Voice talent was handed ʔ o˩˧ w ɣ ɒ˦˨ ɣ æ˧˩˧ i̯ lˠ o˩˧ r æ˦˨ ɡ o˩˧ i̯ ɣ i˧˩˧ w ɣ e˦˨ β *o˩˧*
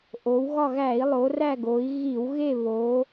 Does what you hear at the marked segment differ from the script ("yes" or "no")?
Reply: no